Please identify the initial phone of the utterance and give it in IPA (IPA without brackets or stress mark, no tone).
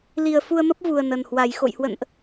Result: l